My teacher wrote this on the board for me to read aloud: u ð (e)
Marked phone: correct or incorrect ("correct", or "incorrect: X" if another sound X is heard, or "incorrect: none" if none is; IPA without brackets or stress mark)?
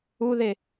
correct